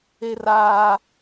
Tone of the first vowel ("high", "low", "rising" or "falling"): high